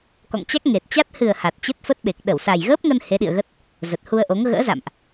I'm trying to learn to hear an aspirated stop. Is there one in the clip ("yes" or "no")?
no